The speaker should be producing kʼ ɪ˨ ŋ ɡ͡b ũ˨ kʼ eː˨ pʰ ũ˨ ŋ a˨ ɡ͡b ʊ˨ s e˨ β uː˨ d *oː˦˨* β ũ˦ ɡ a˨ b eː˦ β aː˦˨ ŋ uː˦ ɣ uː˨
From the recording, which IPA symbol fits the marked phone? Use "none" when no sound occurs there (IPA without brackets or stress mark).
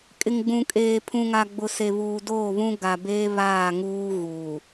oː˦˨